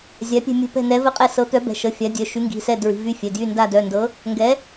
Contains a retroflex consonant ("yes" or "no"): no